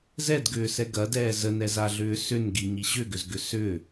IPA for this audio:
z ɛ d ɡ ʏː s ɛ ɡ ɐ d ɛː z ə n ɛ z a ɮ ʏː s ʏ n ɡ i ɲ i ɕ ʏ ɡ ʏ z ɡ ʏ s ʏ

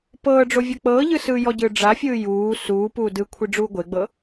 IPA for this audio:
p ɤː ɖ͡ʐ o vʲ ɤ k͡p ɤː ʎ ɯ s ɯː j ɔ ɟ ɯː ɖ͡ʐ a fʲ ɯː j uː s uː p uː d ɯ kʷʰ i ɖ͡ʐ uː ɡʷ e ɡ͡b ɤ

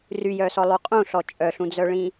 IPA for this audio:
r y j œ s ɔ lˠ u qʼ ũ ɬ ɔ t͡ʃʼ œ ɬ ũ d͡z œ ɭ ĩ

